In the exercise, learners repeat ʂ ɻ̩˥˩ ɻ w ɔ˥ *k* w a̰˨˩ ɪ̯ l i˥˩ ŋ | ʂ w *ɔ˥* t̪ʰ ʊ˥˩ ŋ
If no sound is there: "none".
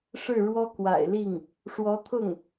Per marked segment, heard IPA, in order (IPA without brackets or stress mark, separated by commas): k, ɔ˧˥